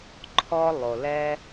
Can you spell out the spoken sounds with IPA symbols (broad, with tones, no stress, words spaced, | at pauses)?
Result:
ǃʰɔ˥lˠo˩lɛ˥